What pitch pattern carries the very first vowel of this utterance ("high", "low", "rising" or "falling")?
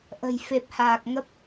low